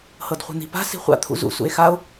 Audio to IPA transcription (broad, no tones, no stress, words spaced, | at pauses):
hɤdχʷi̤n̪i̤pa̤ si̤χʷa̰ t̪ʰṵzṵ sṵe̯xao̯